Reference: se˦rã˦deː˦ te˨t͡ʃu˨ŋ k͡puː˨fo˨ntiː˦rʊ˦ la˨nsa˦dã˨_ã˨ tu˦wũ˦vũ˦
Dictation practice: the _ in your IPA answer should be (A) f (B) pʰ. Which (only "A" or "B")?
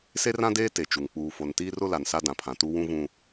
B